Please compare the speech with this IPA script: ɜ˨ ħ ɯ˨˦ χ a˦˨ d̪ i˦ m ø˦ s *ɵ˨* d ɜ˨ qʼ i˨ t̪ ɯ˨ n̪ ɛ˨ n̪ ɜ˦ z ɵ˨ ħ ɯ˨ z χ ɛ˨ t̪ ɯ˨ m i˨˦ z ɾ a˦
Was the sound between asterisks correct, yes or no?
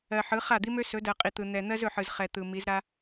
no